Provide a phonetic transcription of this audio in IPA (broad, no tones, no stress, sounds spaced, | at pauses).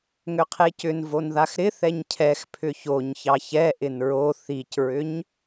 ŋ ʏ qʰ e c ʏ n v o n ð a x ɾ ɪ θ ɛ ɲ cʰ ɛ x pʰ ʏ ç o ɲ ç ɑ ç ɛ ʔ ɪ n ɹ o θ i c ɹ ʏ ɲ